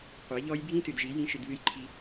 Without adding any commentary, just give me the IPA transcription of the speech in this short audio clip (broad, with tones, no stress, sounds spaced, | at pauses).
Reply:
qʷ e˨˦ ʎ ɔ˦ j bʱ ĩ˦ t ɨ˨ d ʒ i˨˦ j ĩ˦ ʃ ɨ˧ d β ɨ˦ j ǃʰ i˦